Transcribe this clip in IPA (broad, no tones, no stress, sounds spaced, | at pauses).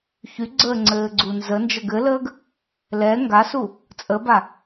ç y ɡ͡ǀ əː ŋ͡ǀ ɘː ɡ͡ǀ u n z ə n d͡ʒ ə ɡ ɘ l əː ɡ | l ɛ ŋ ɡ a s u | t͡sʼ ə b a